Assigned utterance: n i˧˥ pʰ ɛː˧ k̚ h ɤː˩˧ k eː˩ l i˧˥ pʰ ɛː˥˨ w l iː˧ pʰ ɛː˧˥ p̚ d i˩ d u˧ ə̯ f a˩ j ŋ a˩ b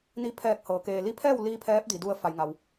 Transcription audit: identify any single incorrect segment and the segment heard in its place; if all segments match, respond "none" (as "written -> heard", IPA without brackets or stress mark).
b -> w